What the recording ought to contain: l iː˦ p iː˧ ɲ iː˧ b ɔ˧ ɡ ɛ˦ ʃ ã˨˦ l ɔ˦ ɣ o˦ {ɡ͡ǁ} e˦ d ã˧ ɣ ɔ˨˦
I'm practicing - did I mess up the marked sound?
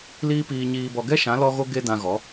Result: yes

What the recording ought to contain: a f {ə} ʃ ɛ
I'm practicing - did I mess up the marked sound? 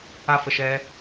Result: no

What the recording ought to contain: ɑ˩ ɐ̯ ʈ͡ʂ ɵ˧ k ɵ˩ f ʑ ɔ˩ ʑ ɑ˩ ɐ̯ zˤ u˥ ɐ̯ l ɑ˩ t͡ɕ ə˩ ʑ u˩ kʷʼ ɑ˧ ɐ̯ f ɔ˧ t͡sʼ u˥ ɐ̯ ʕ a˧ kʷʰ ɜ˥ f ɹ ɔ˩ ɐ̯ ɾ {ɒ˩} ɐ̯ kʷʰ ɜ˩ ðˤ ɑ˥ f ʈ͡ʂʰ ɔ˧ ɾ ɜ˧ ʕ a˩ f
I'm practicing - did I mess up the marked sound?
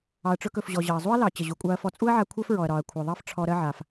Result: no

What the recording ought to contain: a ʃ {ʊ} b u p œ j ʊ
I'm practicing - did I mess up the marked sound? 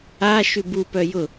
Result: yes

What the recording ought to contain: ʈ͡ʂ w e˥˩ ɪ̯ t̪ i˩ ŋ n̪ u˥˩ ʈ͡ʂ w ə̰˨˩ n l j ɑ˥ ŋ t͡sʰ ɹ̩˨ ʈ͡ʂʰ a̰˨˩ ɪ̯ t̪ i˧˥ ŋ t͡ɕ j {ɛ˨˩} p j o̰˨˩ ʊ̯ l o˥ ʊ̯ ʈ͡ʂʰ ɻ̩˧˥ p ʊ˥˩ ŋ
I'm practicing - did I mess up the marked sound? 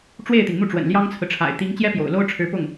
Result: yes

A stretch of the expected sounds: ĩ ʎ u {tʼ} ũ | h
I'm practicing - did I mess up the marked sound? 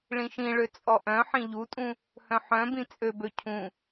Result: no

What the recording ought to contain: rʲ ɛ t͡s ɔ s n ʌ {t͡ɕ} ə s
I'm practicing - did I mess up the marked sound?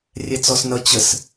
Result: no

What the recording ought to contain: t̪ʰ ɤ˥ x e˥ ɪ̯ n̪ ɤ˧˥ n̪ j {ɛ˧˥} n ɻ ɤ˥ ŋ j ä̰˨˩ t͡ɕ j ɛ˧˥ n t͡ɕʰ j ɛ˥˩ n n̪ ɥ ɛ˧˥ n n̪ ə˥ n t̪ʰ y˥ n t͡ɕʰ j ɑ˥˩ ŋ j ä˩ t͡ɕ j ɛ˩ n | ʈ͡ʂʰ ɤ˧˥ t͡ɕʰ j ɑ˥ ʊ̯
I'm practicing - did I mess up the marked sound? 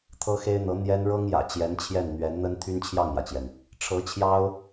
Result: yes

